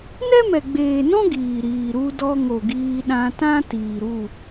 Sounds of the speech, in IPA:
nɛ˦mɛ˨ɡ͡beː˨nɔ̃˦ ɡiː˨ ɾiː˨ ɾu˧dɔ˧ŋo˨ ɡiː˧ɗã˧tã˦ tiː˨ɾu˦˨

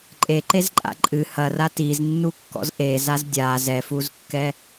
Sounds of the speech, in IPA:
ǃʼeǃezǃʼa̰ ǃʼɨ hɐra tiznːukːɔ̰z ʔezaz dʲa zɛfuzkːɛ

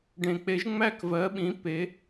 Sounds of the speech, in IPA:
ɖẽ˩k͡pe˨˩˦ʒ ŋ͡mæ˥˩kvɜ˩˥ɓĩ˩˥ pe˩˥

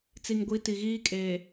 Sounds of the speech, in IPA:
t͡si˨ŋɡʷi˨˦ ti˨ɣiː˦kʼeː˨

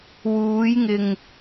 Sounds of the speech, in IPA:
wuː˨˧jŋɪ˨ŋ

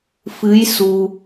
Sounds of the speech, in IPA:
fɨ˧˥j su˧

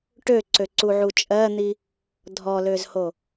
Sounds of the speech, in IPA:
ʈøǀøǀuʕu t͡ʃʼɜn̪i | dʱɔløzho

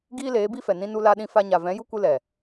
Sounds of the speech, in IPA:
ɡiː˦leː˨˦bi˦fɛ˨ nĩ˧nu˧la˧ ɗĩ˧fa˧ɲa˨ vɛ̃˨˦ju˦kʷɨ˧ lɛ˨

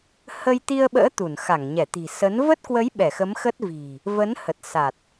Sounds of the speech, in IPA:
hə˧j t̪i˧ə̯ɓə̰ː˧˥ t̪u˧˩n xa˧˩ŋɲɛ˧˩t̪i̤˨˩ sə˨˦n və˦˥t̚kwə˨˦j ɓɛ˧˩xə˨˦mxə˦˥t̚ vi̤˨˩ | və˨˦nhə˨˩t̚ sa˨˩t̚

